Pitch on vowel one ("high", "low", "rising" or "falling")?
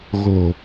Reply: low